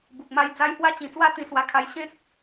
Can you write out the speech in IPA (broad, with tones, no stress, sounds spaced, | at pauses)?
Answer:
b u˨ k̚ m a˧ j d͡z a˧ j h w a˧ t͡ɕ ĩ˨˩ t͡s w a˧ t̪ ĩ˧ s w a˧ kʰ a˧ j ɕ ẽ˦ t̚